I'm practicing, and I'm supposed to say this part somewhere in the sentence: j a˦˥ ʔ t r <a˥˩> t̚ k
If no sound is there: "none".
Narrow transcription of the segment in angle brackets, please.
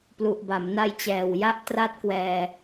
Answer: a˦˥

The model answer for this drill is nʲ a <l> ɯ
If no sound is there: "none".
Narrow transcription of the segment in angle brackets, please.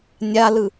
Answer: l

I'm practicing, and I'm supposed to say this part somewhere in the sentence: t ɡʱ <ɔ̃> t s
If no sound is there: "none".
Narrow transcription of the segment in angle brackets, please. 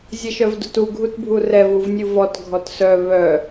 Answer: ɔ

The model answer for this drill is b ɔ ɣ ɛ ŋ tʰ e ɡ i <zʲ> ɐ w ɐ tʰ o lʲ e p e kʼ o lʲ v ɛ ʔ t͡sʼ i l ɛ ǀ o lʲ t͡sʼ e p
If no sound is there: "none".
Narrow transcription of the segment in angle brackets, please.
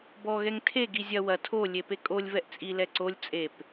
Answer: zʲ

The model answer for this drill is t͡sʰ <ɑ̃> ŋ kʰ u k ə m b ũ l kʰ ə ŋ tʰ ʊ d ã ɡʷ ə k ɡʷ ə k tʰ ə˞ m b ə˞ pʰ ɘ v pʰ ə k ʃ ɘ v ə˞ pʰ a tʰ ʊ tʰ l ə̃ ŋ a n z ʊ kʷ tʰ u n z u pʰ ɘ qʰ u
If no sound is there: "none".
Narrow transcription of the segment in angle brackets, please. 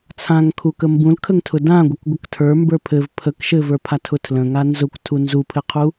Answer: ã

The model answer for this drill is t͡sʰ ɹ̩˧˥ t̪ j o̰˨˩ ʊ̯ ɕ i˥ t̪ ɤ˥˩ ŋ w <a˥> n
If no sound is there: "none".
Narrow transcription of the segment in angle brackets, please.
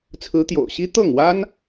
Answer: a˥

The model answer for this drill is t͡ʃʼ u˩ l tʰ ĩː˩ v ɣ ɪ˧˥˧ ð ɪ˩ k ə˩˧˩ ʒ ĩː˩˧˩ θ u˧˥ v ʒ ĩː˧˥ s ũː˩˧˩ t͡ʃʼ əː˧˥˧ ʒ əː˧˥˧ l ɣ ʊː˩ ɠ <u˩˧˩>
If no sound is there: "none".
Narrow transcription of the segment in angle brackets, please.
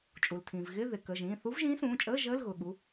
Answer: u˩˧˩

